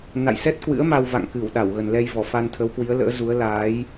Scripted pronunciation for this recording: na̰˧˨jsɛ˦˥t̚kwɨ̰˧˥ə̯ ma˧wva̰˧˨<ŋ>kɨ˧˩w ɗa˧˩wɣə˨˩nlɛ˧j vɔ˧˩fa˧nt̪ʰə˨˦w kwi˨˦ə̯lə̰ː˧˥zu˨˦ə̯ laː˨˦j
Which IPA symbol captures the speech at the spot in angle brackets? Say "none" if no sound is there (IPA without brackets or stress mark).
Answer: ŋ